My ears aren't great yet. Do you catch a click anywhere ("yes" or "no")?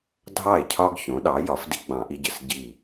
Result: no